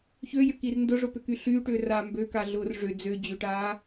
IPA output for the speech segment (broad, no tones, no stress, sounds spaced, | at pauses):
ç ø j ʏ k i r n d ʊ ʐ ʊ p ʏ k y ɬ yː ʈ ʏː r aː m b ø k a ɮ ʊː r ʐ ʏ d͡z ø d͡ʑ ʏ ʈ aː